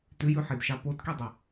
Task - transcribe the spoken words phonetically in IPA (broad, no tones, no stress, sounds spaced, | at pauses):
t ʉ j ʉ ħ i d ʃ ɑ p o t k i dˤ o